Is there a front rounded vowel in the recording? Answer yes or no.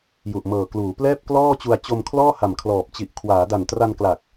no